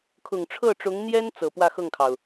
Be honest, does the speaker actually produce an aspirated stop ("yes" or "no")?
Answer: yes